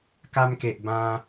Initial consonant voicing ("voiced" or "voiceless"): voiceless